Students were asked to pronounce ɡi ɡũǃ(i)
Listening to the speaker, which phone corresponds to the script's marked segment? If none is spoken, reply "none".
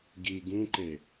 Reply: e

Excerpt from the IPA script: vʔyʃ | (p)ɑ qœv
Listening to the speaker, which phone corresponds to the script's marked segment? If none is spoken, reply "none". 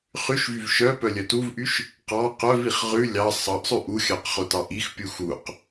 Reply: q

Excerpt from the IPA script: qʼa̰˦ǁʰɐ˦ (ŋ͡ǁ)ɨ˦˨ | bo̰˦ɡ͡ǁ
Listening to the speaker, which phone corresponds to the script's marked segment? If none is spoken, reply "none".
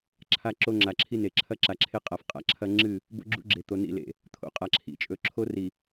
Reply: ŋ͡ǁ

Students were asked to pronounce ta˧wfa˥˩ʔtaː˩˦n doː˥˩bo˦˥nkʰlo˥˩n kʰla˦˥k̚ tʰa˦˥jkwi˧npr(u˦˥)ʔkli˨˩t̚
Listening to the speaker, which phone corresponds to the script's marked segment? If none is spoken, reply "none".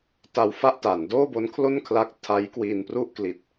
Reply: u˥˩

